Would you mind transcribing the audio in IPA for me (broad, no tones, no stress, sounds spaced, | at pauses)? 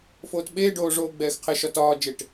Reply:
f oː t ɓ eː ɖ oː ʐ oː ɡ͡b ɛː x qʰ ɛ ʃ ɒ t ɒː d͡ʒ e ʈ